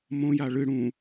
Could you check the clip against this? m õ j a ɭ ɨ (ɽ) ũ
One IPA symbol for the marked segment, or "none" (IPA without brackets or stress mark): ɽ